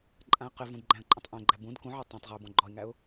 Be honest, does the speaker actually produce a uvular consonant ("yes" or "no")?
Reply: yes